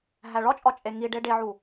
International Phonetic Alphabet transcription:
ɦ æ ɭ ɒ t͡ʃʼ ɒ t͡ʃʼ e ŋ i ɖ e ɖ e ʕ u

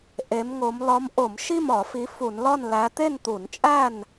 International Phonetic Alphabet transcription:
ʔ e˨˦ m ŋ o˨˦ m l ɒ˨˦ m ʔ o˧˩˧ m ʃ i˥˨ m ɒ˧˩˧ f i˨˦ f u˧˩˧ n l ɒ˥˨ n l æ˨˦ t̪ e˥˨ n t̪ u˧˩˧ n t͡ʃʼ æ˥˨ n

